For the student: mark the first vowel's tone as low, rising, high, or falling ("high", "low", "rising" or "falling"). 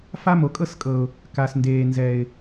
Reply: high